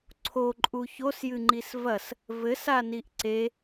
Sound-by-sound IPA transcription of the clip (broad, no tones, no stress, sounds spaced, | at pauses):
ǀʰ o ǃʼ u ç o s j ɨ ŋ͡ǃ i s v ɐ s | v ɘ s a n i ʔ ǀ e